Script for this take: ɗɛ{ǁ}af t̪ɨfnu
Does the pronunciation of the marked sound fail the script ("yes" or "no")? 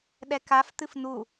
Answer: yes